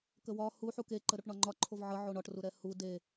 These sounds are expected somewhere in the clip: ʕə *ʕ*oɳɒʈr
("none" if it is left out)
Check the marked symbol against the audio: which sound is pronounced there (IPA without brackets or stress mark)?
ʕ